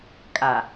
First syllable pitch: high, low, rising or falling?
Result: low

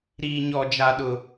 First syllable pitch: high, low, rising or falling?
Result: high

